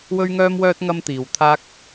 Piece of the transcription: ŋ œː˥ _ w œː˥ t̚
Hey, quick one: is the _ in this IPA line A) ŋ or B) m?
B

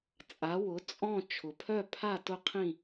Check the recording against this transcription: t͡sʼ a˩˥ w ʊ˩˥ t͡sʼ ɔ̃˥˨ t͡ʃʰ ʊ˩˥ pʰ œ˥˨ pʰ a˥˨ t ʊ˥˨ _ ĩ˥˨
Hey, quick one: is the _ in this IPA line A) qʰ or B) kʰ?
A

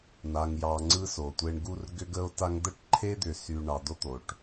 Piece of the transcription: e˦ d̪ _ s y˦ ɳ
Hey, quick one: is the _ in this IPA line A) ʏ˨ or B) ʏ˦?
A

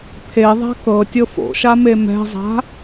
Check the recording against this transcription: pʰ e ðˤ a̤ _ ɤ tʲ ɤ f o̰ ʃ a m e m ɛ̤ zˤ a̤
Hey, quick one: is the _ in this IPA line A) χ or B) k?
B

